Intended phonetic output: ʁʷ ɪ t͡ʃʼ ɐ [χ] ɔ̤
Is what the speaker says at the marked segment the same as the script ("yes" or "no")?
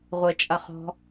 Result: yes